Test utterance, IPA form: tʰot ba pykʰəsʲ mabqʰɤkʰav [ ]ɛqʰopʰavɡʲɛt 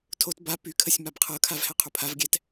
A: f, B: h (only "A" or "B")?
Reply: B